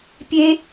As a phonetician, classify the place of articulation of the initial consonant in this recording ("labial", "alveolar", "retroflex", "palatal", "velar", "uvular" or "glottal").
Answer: labial